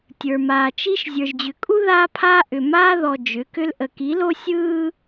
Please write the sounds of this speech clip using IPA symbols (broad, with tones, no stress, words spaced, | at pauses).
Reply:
tʲə˞˨maː˨t͡ʃi˦ʃ zʲə˞˨ʒd͡ʑʏ˨kʼu˦ ðaː˦pʰaː˦ ʔʏ˨ maː˦ ðɔ˨ d͡ʒʏ˨˦kʏ˦l ʔə˨ki˨˦lo˦ sʲɯː˦